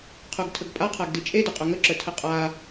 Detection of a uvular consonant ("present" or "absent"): present